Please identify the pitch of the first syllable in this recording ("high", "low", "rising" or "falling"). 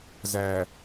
low